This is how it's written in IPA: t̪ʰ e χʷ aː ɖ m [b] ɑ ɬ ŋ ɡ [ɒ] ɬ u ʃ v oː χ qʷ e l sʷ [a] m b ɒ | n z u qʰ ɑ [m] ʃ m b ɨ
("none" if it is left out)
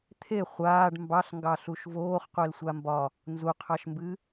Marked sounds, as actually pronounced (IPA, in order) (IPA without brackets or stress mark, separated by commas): b, ɑ, a, none